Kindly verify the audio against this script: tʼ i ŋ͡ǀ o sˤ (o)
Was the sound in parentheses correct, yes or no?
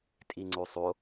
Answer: yes